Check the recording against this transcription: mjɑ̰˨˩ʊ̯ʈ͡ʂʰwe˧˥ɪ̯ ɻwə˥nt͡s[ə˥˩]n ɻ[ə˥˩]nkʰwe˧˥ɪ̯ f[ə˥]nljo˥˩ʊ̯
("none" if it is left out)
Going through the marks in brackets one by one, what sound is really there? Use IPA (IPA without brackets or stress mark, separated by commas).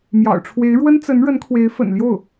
ə˧˥, ə˧˥, ə̰˨˩